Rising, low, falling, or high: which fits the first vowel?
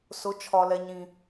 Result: rising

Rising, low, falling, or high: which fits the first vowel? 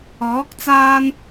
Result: rising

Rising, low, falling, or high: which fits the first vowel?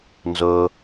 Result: low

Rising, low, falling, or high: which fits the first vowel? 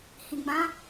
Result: low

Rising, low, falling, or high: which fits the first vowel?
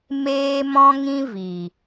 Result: high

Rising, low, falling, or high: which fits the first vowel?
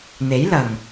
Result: rising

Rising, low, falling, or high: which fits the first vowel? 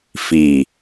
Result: low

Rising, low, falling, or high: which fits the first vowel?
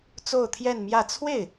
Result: falling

